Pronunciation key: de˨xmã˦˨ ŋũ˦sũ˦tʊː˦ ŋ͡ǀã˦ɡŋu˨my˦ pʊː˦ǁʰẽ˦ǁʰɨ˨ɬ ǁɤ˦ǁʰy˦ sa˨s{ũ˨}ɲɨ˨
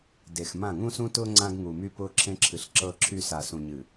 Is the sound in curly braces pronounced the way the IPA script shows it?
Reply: yes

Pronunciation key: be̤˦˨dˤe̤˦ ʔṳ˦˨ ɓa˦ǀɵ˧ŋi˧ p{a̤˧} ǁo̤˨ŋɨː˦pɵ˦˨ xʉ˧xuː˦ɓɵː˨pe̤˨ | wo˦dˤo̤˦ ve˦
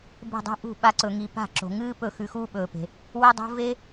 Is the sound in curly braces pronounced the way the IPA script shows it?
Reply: no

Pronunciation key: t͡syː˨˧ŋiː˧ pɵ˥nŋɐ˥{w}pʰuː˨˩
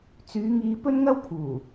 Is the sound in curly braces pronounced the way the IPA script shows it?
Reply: yes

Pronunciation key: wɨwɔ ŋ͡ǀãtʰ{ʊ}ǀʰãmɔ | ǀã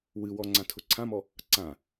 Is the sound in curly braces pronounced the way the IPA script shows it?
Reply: yes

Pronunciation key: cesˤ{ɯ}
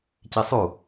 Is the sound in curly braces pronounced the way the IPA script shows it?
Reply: no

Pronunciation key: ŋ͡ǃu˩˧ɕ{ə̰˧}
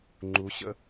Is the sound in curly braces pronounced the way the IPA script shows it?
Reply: yes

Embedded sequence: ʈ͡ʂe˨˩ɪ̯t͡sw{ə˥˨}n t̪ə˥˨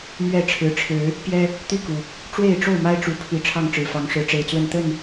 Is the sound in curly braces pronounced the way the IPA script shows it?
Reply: yes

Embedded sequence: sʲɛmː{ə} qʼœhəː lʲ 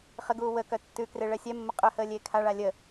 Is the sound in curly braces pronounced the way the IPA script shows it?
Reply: yes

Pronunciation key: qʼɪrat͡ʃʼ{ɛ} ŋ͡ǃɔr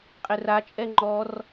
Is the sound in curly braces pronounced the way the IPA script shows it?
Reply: yes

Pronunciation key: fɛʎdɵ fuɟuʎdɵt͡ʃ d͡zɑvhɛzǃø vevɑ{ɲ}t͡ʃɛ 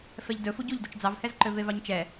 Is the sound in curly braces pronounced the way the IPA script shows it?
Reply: yes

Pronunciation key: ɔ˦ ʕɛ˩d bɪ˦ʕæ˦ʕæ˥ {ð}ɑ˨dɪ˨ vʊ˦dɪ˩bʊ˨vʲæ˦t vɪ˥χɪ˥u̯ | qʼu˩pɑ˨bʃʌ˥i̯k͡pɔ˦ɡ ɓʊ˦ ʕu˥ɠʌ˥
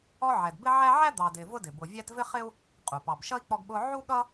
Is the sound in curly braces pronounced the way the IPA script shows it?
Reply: no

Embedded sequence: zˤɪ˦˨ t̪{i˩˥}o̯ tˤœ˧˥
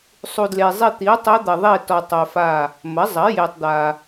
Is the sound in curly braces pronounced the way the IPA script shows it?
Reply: yes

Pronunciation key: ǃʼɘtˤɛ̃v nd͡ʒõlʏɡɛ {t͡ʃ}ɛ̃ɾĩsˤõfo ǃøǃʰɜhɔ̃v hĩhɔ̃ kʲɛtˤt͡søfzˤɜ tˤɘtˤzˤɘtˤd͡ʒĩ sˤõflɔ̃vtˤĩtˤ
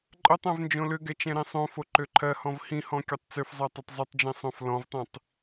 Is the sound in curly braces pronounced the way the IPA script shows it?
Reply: yes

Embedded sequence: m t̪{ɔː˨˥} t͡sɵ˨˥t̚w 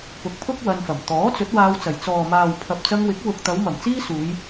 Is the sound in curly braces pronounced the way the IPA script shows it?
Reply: yes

